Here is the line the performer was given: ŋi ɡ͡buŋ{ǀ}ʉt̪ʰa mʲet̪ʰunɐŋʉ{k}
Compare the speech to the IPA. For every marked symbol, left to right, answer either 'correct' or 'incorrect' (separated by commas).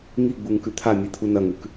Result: incorrect, correct